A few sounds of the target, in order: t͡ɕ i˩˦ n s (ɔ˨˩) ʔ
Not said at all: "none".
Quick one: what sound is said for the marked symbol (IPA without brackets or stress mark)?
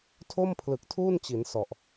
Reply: ɔ˨˩